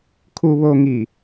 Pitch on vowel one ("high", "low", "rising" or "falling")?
low